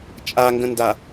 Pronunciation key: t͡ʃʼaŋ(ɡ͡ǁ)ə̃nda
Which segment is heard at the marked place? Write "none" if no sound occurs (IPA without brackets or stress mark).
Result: ɡ